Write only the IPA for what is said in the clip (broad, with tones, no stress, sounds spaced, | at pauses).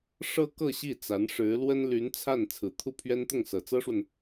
ʂ ɤ˥ k ɤ˥˧ ɕ i˥˩ t͡s a˧˥ n ʂ ɻ̩˧˥ l w ə˥ n l y˧˥ n t͡sʰ a˥˩ n t͡sʰ ɹ̩˨˩ t̪ʰ u˥˩ pʰ ɥ ɛ˥ n t̪ ʊ˥˩ ŋ s ɤ˨˩ t͡s ɤ˥ ʂ w ə˨ n